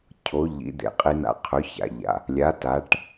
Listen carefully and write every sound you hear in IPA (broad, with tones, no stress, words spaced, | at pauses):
cʰo˩˥ ʎḭ˩˥d̪ḛ˩qʼi˧n a̰˩˥qʰɵ˩˥ça̰˩ʎa̰˩ | lʲa˩˥ ta˩˥ʈ